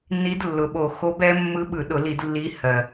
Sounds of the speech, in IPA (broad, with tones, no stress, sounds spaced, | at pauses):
n i˧˥ d lː ʊ˨˩ ɓ o˧˩˧ x o˧˥ b ɛ˧˥ mː ɯ˧˥ ɓ ɯ˧˩˧ ɗ ʊ˧˩˧ l i˧˩˧ d lː i˧˥ h ɜ˨˩